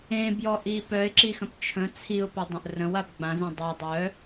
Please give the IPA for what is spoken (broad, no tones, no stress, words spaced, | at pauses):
ẽ bjɔʔipœɪ̯ ǁixə̃pt͡ʃʰə̃ t͡sʰiʊ̯ pɪdˤə̃ʔrə̃w abɡ͡bãz ẽdˤɛ dˤœ